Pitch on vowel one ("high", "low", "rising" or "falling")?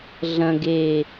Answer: low